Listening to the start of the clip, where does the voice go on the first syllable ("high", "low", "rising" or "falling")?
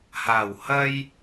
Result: low